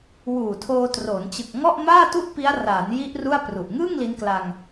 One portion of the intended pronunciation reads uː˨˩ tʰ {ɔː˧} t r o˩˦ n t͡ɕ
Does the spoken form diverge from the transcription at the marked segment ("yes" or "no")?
yes